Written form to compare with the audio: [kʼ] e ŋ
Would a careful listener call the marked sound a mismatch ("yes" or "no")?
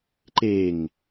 yes